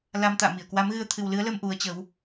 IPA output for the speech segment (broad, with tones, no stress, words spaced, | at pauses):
la˧mt̪a̰ː˧˨mi˧˩ə̯ kwa˨˦mɣɨ˧ə̯ t̪ʰɨ˨˩wlɨ˨˦ə̯lə˧m ʔu˨˦ə̯t͡ɕə˨˦w